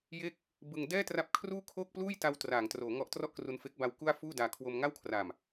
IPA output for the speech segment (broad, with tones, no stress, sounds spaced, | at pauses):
j e˥˩ k̚ | b ɯ˧ ŋ d ɛː˥˩ t r a˦˥ p̚ kʰ r uː˥˩ kʰ oː˥˩ k̚ p l uː˥˩ j t a˧ w t r aː˩˦ ŋ t r oː˩˦ ŋ ɔ˦˥ ʔ t r ɔ˥˩ ʔ k r u˧ n f e˦˥ k̚ b a˧ w k u˥˩ a̯ f uː˥˩ d aː˧ kʰ w o˧ m ŋ a˥˩ w kʰ r a˨˩ m